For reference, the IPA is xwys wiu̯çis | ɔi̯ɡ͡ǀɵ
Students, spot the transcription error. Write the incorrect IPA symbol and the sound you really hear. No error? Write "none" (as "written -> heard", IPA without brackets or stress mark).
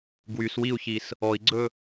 x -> ɡ